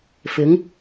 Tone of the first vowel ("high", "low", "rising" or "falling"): rising